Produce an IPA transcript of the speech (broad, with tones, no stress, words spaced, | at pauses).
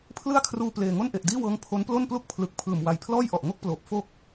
pʰlɯ˥˩a̯kʰruː˧ pleː˨˩ ŋo˥˩nʔe˨˩ʔdiː˥˩wɤː˦˥ŋ pʰo˦˥nplo˥˩nplu˥˩k̚ pʰlɯ˨˩k̚ pʰɯː˨˩mwa˧j pʰlɔː˥˩jʔɔ˨˩ʔ ŋo˥˩k̚ploː˨˩p̚ fo˥˩k̚